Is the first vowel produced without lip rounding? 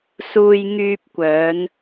no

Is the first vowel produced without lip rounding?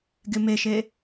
yes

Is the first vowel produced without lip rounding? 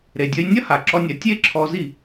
yes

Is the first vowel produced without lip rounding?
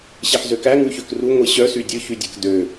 yes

